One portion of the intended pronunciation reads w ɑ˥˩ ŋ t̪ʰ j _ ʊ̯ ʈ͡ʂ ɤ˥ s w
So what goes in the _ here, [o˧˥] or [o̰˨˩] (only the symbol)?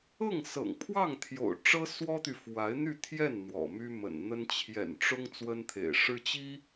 o̰˨˩